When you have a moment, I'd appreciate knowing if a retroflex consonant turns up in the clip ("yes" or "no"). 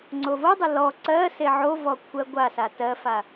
no